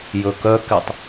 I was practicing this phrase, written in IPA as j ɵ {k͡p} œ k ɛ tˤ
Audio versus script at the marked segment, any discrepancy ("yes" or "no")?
yes